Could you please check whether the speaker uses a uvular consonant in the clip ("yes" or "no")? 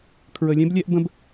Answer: no